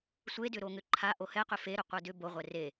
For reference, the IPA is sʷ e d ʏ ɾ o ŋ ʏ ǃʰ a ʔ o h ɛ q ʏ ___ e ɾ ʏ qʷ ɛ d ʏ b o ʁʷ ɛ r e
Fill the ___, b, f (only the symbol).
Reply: f